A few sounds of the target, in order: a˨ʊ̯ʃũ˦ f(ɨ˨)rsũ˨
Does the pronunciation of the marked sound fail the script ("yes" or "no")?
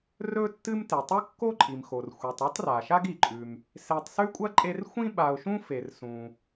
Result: yes